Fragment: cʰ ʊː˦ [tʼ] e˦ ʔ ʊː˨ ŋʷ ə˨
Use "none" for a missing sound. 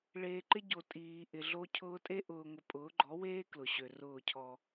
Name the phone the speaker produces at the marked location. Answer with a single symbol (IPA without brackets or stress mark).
tʼ